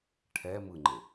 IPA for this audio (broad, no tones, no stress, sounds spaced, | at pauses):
ʈʰ ɛ m ɯ ŋ͡ǃ e